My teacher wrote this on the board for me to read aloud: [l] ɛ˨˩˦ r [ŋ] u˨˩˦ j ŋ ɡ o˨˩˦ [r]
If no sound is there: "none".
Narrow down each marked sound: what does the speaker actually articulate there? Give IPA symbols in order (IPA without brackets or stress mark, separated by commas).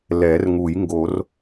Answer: l, ŋ, r